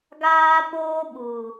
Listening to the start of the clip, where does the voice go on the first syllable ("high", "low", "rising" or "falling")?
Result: high